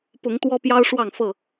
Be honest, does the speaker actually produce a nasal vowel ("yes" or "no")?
no